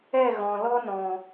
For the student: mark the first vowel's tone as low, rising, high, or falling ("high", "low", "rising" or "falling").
falling